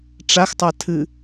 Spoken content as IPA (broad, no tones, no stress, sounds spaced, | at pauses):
ʈ͡ʂ a x tˤ a tʰ ɨ